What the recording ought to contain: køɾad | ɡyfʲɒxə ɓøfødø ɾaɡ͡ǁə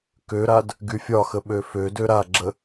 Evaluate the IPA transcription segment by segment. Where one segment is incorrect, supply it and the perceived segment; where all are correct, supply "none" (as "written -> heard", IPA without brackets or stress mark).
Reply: none